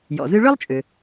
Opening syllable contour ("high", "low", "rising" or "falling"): low